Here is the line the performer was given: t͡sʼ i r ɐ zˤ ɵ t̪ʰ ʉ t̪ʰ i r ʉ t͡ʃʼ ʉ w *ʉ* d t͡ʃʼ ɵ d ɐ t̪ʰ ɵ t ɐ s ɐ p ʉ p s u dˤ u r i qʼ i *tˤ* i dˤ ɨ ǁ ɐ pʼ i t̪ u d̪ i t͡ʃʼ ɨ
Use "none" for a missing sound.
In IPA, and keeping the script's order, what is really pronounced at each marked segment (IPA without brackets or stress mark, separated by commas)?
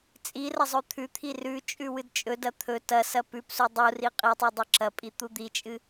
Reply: ɨ, tˤ